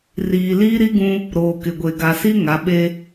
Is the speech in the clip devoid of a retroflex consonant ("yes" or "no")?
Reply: yes